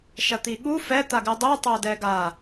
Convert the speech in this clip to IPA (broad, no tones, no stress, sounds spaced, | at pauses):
ʃ ɐ t̪ i ɠ u f ɛ t̪ a ɡ ɨ dˤ u tˤ o d ɛ ɡ a